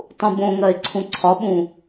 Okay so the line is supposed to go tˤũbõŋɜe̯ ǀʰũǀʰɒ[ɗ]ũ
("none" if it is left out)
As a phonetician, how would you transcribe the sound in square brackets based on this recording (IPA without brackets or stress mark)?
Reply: ɓ